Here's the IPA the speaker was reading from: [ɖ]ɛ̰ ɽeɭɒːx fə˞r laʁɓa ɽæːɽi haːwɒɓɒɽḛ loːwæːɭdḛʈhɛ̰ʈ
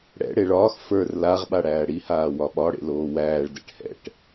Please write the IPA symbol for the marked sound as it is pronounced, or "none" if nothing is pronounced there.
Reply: ɽ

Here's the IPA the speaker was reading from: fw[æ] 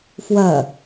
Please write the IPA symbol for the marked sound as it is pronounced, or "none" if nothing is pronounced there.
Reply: ɐ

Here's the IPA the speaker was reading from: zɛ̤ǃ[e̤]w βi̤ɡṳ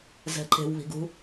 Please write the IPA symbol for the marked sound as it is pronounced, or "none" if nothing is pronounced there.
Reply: e̤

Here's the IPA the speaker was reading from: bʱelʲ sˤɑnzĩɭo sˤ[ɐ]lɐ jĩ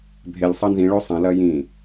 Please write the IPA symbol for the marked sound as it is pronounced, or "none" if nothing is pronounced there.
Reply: ɐ̃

